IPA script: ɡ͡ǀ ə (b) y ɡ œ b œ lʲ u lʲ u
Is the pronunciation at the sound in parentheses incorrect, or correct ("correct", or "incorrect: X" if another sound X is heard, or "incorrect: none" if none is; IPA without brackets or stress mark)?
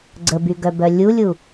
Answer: correct